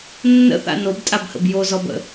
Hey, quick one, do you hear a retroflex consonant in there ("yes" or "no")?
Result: no